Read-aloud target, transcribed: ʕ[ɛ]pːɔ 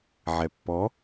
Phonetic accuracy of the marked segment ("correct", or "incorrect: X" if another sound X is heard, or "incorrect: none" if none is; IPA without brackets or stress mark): correct